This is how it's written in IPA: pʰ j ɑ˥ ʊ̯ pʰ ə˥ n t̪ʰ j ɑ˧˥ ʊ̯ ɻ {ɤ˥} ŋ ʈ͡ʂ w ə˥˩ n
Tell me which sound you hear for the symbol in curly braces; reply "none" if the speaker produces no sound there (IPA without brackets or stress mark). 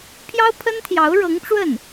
ɤ˧˥